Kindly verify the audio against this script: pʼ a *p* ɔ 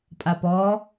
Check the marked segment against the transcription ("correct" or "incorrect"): correct